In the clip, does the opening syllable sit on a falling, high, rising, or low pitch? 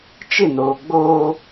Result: falling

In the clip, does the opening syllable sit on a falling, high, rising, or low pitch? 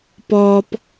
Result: high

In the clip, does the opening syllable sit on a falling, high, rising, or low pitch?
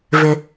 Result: low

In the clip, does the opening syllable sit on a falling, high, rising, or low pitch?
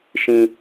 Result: low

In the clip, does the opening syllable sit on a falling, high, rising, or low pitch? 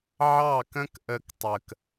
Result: falling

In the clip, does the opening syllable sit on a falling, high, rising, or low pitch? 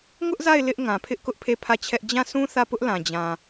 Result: high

